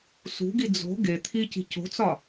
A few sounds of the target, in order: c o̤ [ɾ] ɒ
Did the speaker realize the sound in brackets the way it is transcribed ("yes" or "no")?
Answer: no